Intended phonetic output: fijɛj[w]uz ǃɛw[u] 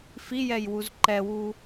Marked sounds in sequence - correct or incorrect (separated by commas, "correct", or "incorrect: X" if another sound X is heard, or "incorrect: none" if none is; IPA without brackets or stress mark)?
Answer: correct, correct